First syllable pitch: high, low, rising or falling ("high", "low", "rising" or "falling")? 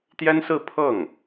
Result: high